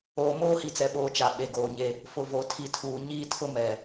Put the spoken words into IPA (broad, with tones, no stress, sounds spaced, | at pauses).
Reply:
oː˨ m oː˦ h i˨ t͡s ɛ˨ ɓ oː˨ t͡ʃ a˨ ɓ e˨ ɡ oː˨ ɲ e˦ | f ʊ˨ v o˨ tʰ i˨ tʰ uː˨ ɲ iː˦ tʰ ʊ˦ m ɛ˨